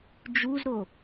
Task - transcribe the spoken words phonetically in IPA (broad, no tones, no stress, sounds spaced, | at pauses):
d͡ʒ u z ɾ o